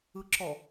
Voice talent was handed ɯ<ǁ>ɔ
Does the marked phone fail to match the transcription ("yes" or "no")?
no